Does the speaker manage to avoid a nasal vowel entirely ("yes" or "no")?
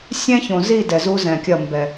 no